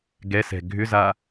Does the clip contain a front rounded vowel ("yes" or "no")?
yes